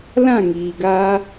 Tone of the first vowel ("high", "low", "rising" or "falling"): falling